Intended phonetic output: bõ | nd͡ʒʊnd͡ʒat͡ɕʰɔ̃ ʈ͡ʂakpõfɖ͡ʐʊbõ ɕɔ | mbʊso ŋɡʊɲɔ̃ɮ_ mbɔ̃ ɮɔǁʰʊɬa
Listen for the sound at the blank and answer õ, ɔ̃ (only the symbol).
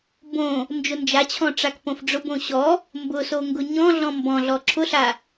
ɔ̃